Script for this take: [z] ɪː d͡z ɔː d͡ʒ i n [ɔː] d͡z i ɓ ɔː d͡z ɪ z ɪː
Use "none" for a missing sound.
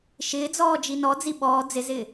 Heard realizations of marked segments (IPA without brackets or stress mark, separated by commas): ʃ, ɔ